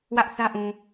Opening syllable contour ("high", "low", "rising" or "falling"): high